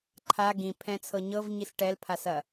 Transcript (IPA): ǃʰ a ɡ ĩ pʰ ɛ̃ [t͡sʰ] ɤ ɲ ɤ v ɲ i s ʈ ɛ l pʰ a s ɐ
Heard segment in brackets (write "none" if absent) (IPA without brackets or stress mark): t͡sʰ